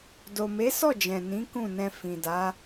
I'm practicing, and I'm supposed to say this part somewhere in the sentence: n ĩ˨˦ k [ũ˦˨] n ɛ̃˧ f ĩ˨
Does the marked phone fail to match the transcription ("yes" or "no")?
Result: no